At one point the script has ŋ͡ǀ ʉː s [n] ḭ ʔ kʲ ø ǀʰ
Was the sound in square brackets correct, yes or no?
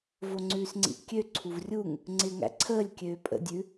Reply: no